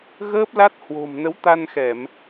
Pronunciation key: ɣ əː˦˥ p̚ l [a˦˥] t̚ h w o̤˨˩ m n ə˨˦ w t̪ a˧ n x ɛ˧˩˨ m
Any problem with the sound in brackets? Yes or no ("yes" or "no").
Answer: no